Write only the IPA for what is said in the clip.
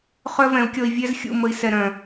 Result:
χ œ˦ v ɛ̃˨˦ u̯ kʲ ɔ˧ i̯ vʲ ɛ˦ z xʲ ṵ˦˨ m ə˧ i̯ s ɛ˨ ɾ œ̃˨

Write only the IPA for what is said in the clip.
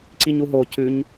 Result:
ǀ i ɲ u ɦ o c ʉ ɲ

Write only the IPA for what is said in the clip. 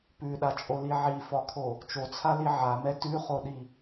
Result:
p ʉ ɗ a t͡ʃʼ o l i ʕ i f ɒ kʰ o | t͡ʃ o t͡sʰ a l i ʕ a m ɛ t ʉ χ o ɗ i

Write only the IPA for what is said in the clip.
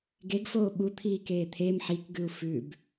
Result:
ɡ e ɡ f oː ɓ u t̪ʰ iː k eː t̪ʰ e m ħ i k ɡ ʉ u̯ f ʉ b

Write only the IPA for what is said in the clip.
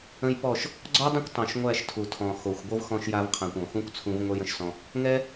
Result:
ə̃˦ j p ɔ˦˨ ʃ | ɡ͡ǀ ɔ˦ dˤ ə̃˦ kʷ tˤ õ˨ ʃ ŋʷ æ˦˨ ʃ tʰ u˨ tʰ ɔ̃˨ x o˨ xʷ ɡʷ ɤ˦ v x ɔ̃˧ ʃ j a˧ v qʰ ã˨ kʷ ɔ̃˨ x ũ˦ kʷ t͡sʰ ũ˧ v ŋʷ ɛ˦ j ə̃˦ ʃ s ɔ̃˧ | ŋ ɛ˦

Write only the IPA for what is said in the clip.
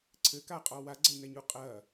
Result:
ǀʰ ɘ k a qʼ ɔ w a ɡ͡ǀ ɐ y̯ n ɛ ɲ u qʼ ɐ

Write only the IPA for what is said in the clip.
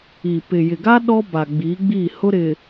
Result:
i˨ p ɪ˨ j ɪ˨ ɡ a˦ ɗ ɔ˦ b a˨ ɡ͡b i˨˦ ɡ͡b i˦˨ h ʊ˦ ɾ ɪ˨

